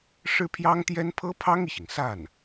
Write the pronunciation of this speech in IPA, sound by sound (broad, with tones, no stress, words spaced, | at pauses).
ʂɻ̩˥pʰjɑ˥ŋt̪jɛ˥n pʰɤ˥pʰɑ˥ŋi˨ɕi˩ŋ sa˥˩n